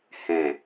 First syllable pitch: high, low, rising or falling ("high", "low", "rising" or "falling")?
low